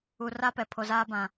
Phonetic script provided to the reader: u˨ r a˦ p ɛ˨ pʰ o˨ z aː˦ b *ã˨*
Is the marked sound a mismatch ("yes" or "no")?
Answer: no